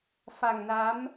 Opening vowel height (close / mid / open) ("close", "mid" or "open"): open